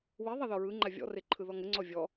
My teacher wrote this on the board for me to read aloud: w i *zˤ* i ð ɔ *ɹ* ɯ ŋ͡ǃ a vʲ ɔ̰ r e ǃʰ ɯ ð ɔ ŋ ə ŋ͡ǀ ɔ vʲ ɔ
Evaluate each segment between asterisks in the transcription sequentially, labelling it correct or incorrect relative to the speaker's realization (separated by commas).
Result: incorrect, correct